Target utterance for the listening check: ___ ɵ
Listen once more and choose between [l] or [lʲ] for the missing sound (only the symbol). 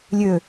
lʲ